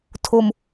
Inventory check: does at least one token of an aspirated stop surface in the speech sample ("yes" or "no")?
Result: yes